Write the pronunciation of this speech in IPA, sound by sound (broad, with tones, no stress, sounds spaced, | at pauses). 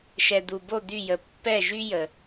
ʃ ɛ˩ d̪ u˩ b o˧˩ d̪ y˧˩ j ə˩ pː ɛ˧˩ ʒ y˧ j ə˩